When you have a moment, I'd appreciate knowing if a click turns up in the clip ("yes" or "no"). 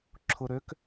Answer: yes